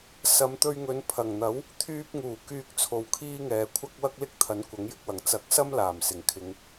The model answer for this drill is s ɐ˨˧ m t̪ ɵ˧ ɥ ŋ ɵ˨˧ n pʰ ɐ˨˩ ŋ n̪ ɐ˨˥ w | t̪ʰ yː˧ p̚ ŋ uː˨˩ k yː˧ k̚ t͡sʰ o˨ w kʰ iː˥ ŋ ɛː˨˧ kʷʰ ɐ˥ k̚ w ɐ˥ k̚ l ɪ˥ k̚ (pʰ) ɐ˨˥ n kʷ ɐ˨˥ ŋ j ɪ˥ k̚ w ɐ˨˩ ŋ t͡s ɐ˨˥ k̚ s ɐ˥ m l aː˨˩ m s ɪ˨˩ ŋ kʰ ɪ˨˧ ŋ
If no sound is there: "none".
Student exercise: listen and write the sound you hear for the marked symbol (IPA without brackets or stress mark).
t̪ʰ